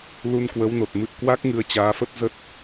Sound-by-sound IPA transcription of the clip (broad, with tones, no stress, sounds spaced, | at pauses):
l u˧ n k w ə˨˦ w n o˨˩ t̚ m ɨ̰˧˨ ə̯ k w a˦˥ k̚ ŋ ɨ˧ ə̯ t͡ɕ aː˨˦ f ə˦˥ t̚ z ə˦˥ t̚